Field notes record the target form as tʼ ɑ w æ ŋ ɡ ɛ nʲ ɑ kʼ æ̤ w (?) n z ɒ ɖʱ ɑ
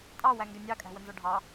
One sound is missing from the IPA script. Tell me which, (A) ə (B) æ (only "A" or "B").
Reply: A